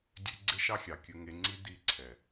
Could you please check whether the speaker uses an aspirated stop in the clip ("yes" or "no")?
yes